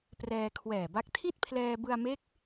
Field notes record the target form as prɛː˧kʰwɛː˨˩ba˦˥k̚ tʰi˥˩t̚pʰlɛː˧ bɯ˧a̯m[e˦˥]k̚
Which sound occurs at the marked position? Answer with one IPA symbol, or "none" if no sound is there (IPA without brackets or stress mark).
e˦˥